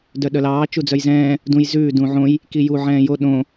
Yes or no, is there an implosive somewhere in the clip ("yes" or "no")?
yes